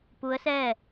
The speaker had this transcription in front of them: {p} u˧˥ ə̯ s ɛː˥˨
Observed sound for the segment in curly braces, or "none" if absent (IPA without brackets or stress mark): p